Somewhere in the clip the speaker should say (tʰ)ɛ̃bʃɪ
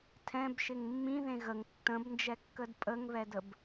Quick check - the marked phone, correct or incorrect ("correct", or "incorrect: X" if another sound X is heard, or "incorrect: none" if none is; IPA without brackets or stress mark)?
correct